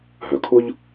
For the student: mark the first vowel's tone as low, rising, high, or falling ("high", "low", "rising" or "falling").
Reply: low